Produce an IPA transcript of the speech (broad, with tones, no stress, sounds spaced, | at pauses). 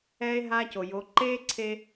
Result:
ɛː˥ e̯ ɦ aː˥ c o˩ j o˩˧ ǃ eː˥ ǀʰ e˧